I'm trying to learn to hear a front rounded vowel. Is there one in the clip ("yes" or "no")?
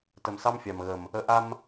no